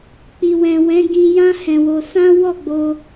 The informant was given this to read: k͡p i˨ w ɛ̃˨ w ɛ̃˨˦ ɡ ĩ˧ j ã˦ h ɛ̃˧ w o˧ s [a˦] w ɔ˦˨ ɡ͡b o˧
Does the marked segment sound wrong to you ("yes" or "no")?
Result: yes